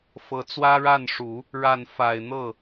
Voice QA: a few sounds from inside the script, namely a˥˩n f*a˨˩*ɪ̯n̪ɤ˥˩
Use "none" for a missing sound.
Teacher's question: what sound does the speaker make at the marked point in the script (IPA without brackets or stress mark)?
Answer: a˨˩